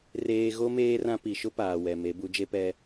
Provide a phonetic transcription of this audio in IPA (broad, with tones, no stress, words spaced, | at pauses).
reː˦ ɣo˦ meː˦rã˦ pi˨ʃʊ˦ paː˨wɛ˨me˨˦ bu˨˦d͡ʒe˦pɛ˦